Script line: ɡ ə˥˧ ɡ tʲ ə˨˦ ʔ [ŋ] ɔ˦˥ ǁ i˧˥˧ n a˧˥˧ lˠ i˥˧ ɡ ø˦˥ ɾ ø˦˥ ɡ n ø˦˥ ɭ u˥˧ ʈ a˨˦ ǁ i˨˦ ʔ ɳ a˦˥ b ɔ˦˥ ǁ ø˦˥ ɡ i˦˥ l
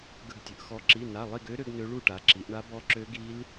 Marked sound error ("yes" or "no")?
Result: yes